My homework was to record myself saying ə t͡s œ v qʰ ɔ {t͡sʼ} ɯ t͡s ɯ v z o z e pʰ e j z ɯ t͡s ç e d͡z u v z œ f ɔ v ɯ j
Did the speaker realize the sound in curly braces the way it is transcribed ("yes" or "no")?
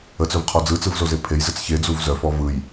no